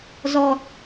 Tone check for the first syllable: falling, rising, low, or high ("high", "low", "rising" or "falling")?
low